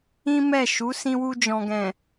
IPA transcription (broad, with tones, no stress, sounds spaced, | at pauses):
ĩ˦ m ɛ˦˨ ʃ u˨˦ s ĩ˧ w u˧ d͡ʒ ɔ̃˨ ɡ ɛ̃˨